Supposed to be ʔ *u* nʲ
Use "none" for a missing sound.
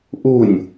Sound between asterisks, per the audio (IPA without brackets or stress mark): u